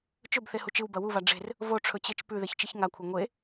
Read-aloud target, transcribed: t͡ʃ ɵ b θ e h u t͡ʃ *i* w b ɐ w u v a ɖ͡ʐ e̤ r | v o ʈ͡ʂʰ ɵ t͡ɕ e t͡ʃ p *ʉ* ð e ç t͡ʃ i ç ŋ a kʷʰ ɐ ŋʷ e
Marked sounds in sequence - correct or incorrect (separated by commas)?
incorrect, correct